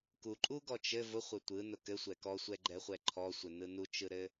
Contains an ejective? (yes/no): yes